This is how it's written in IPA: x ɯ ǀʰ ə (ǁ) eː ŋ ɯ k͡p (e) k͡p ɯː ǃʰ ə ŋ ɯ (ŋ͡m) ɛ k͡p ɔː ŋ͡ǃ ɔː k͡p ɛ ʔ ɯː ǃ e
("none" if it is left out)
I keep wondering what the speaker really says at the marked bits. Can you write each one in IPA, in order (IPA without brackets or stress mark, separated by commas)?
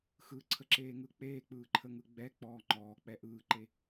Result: ǁ, eː, ɡ͡b